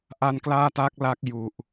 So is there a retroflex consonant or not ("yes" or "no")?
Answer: no